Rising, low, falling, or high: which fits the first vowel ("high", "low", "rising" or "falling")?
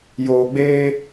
low